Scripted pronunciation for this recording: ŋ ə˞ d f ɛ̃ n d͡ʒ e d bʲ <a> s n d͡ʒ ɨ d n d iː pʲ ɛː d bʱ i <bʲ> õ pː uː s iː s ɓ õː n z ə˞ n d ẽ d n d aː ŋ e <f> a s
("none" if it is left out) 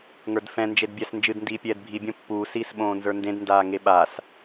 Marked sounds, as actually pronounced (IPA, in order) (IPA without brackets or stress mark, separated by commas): æ, bʲ, ɓ